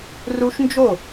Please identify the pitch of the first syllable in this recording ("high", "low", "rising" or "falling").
high